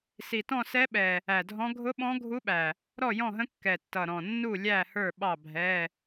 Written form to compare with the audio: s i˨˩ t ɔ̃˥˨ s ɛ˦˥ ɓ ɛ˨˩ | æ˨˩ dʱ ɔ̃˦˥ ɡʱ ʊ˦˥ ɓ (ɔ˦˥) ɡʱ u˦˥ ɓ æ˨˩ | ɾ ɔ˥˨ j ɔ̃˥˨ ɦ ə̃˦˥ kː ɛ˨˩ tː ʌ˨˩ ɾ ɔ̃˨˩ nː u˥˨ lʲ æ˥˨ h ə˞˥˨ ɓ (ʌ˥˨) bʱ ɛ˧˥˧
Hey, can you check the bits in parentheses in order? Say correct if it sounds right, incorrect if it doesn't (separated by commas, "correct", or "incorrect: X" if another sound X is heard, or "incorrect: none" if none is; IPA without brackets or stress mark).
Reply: incorrect: ɔ̃˦˥, incorrect: ɑ˥˨